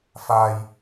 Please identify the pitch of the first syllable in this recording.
low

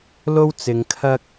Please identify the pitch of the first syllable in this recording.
high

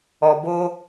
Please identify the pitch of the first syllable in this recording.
low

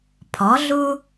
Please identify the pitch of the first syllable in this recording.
rising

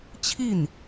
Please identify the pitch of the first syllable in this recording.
falling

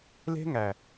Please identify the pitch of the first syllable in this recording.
high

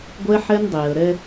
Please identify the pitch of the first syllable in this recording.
high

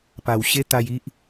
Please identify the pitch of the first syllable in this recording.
low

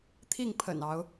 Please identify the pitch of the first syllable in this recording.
falling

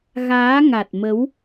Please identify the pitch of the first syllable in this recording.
rising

